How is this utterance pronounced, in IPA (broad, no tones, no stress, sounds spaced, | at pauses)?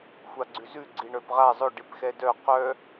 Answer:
xʷ a ɡ͡ǀ ʉ z ʉ ɡ͡ǀ i ɳ œ p ʁ a zˤ ʊ ɖ i p x ɛ d œ q œ